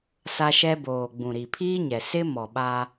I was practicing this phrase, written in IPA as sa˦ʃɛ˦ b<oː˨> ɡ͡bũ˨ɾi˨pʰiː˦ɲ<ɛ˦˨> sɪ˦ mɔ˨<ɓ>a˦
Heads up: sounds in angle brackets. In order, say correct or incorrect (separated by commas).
correct, incorrect, correct